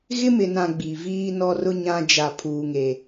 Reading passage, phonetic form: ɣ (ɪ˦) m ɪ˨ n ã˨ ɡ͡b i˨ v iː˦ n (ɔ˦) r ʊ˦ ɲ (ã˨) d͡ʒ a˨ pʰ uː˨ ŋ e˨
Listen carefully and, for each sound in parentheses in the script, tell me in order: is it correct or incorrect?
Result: correct, correct, incorrect: ã˦

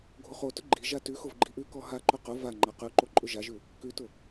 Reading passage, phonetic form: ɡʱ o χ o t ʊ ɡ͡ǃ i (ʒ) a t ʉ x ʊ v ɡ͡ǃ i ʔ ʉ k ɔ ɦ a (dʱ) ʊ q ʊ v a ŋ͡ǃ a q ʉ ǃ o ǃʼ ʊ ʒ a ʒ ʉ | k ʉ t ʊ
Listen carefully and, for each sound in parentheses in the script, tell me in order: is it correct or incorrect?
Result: correct, incorrect: ǃ

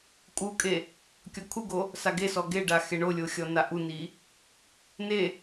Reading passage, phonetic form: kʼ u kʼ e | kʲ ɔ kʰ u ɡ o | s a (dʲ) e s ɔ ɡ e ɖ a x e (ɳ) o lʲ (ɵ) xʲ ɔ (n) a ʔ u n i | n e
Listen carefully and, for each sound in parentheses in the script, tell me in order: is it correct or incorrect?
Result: incorrect: ɡ, correct, incorrect: o, correct

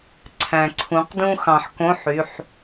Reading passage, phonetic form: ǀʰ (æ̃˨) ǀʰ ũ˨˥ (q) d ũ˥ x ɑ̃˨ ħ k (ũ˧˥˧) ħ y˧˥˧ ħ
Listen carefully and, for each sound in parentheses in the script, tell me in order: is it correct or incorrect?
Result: correct, correct, incorrect: õ˧˥˧

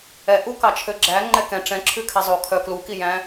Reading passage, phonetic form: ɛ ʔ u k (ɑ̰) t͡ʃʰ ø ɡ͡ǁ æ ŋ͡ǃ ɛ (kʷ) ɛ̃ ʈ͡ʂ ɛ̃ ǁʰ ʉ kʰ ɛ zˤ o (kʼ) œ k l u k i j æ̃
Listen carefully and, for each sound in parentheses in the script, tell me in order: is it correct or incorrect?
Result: incorrect: ɑ, incorrect: k, incorrect: kʰ

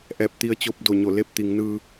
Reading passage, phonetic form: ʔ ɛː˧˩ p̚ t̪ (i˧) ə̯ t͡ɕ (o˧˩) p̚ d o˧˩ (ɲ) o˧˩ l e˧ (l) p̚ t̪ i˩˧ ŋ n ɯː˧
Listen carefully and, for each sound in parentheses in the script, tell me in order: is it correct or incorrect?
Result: correct, incorrect: o˥˨, correct, incorrect: none

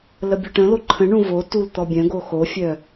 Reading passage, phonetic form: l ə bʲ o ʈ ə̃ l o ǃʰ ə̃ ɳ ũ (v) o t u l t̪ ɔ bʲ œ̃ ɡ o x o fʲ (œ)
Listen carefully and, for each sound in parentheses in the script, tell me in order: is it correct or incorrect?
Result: correct, correct

